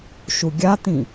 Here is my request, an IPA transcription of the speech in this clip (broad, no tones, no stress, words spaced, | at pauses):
ʃuɡʲat̪ĩ